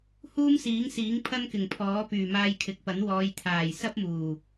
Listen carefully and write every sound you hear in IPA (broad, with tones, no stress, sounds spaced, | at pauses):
h uː˥ m s iː˨˥ ŋ s iː˨˥ ŋ pʰ ɐ˥ n k ɪ˨˩ ŋ pʰ ɔː˨˥ p yː˨˩ m aː˧ j kʰ ɪ˨ k̚ p ɐ˨˥ n w ɔː˨˧ j t̪ʰ aː˨˩ j s ɐ˥ p̚ m uː˨˩